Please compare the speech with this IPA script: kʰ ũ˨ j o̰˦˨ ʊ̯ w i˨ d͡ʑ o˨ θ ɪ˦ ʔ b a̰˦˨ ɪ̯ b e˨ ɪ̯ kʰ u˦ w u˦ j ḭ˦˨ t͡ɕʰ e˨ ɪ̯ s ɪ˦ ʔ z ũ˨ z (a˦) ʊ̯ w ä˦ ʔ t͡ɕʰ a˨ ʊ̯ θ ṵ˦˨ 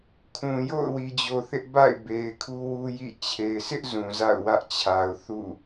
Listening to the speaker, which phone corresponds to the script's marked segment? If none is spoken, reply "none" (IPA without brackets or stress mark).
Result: a̰˦˨